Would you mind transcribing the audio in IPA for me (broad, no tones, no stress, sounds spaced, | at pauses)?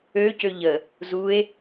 ø c ø ʎ ə | z u e̯